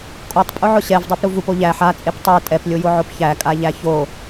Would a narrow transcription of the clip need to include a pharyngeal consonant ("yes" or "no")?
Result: yes